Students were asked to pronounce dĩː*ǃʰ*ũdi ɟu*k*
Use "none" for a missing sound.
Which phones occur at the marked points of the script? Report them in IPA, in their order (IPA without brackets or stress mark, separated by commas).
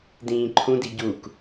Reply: ǃʰ, k